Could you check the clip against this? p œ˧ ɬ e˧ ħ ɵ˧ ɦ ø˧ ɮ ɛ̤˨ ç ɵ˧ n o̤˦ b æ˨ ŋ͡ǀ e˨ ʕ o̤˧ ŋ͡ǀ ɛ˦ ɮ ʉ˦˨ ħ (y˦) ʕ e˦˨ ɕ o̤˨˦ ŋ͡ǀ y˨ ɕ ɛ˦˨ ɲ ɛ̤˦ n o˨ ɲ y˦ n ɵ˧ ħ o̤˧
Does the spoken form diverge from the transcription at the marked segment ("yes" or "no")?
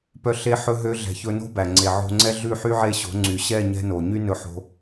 no